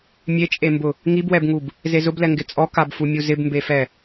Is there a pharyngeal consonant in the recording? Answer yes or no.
no